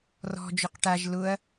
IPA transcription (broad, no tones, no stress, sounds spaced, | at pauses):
r ɔ̤ d͡ʒ ʊ q ʈ a ʒ l ʊ ɐ̯